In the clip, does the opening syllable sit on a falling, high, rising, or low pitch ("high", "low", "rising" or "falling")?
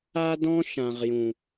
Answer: high